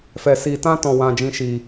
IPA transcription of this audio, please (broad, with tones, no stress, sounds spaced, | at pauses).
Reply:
f ɛ˧ s i˧ t ã˦ t ɔ̃˧ w ã˧ d͡ʒ ĩ˧ ʃ i˧